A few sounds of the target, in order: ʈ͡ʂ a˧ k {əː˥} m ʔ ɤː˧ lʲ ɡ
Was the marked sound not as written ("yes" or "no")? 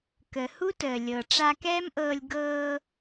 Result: yes